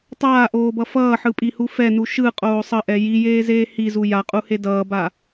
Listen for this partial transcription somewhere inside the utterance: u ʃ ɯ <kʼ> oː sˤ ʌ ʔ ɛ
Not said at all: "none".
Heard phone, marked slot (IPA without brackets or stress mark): qʼ